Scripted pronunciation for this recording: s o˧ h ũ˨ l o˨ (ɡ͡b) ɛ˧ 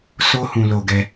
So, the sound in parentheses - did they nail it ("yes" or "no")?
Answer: no